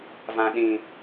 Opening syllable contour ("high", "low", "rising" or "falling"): low